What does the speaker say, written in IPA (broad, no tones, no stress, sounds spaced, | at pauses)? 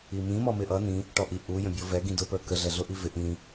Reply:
i m ĩ m ɔ m ɪ ʔ ʌ n ĩ | ʈ ɔ ʔ i ʔ u j ə̃ bʲ ɔ v ɛ ɡ ĩ d ʊ p ə˞ k ə ɮ ɛ ɮ ʊ ʔ i v ɪ ʔ ĩ